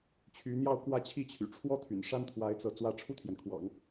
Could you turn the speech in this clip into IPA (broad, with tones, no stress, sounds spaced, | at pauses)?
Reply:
t͡ɕʰ y˧˥ n̪ j ɑ˥˧ ʊ̯ k w ä˥˧ t͡ɕʰ i˥˩ t͡ɕʰ y̰˨˩ ʈ͡ʂʰ w ɔ˥ t̪ʰ y̰˨˩ n ʂ a˥ n t̪ʰ w a˧˥ ɪ̯ t͡s ɤ˧˥ t͡s w ä˧˥ ʈ͡ʂʰ u˥˩ t̪ʰ j ɛ˩ n kʰ w ɑ̰˨˩˦ ŋ